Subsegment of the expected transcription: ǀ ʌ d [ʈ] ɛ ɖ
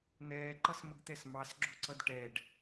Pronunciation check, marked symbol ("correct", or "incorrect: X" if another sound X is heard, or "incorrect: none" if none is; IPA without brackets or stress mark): correct